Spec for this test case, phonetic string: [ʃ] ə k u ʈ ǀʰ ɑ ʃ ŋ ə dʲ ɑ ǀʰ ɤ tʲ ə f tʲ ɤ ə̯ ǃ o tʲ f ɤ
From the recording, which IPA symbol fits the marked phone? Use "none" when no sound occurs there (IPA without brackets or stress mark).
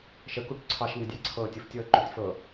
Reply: ʃ